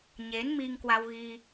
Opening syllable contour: rising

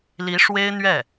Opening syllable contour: rising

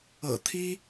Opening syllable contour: low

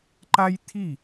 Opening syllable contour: high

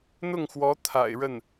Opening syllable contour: falling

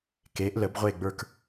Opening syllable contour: rising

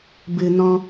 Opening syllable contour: low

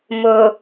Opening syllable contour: low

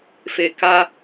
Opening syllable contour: low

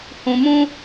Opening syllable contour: low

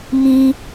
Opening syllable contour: high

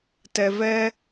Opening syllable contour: low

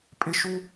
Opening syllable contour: high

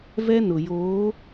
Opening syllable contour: high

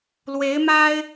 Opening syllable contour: rising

